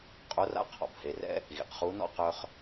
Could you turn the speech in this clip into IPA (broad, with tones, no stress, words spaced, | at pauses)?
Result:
qʼo˧˥ra̰˧˥ qʰɔ̰˩bhe˩˧rɛ̰˥ | ɣḭ˩qχu˧˥nɔ̰˥ qœ˧χ